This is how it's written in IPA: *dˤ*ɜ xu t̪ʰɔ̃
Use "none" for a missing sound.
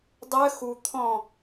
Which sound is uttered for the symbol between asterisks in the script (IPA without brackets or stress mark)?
dˤ